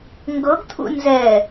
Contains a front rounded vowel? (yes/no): no